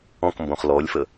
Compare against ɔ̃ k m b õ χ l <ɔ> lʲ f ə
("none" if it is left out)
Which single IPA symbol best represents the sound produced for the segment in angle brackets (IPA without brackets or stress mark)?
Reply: ɔ